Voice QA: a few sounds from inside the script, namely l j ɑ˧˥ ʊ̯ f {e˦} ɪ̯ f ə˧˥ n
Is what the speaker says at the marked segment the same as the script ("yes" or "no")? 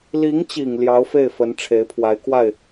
no